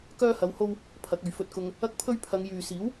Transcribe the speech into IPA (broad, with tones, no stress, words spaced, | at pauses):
kœː˥hɐ˧who˥w | pʰɐ˨˥k̚ɵ˨ɥ fɵ˧t̚kʊ˧ŋ | ɐ˥k̚pʰɵ˥ɥ pʰɐ˨˧ŋjyː˨ siː˨˥w